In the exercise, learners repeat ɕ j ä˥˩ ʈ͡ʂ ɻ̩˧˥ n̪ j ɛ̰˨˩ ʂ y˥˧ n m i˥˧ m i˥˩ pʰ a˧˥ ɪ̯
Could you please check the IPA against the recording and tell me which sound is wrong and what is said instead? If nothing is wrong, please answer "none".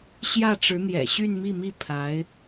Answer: ʂ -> ɕ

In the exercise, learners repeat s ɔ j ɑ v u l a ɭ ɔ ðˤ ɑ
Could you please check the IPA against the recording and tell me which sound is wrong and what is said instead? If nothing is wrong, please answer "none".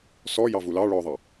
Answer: a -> ɑ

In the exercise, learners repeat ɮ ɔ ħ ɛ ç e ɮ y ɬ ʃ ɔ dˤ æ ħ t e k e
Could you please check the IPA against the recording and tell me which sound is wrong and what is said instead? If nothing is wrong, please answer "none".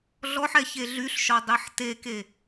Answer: æ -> ɛ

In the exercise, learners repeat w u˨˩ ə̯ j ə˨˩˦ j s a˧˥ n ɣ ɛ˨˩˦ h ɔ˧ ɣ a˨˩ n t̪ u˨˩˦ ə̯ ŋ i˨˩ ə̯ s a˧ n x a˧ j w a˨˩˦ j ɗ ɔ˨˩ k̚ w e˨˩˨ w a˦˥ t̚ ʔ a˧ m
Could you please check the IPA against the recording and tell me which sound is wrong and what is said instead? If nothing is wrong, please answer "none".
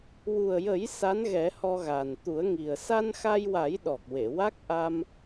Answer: t̚ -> k̚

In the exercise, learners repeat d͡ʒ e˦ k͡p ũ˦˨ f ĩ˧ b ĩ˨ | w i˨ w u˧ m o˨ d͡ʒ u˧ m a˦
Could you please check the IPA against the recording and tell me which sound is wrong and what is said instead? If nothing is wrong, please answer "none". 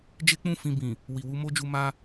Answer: o˨ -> o˦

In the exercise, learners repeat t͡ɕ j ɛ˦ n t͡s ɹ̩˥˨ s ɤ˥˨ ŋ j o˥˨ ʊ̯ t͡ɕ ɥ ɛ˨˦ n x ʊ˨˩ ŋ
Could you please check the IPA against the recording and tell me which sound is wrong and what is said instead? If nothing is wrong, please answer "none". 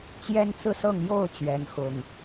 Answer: none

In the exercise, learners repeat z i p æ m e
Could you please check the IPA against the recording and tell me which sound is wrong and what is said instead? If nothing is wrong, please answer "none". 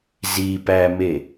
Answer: none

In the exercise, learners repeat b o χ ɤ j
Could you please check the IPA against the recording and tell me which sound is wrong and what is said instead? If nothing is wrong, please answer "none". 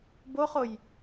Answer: ɤ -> o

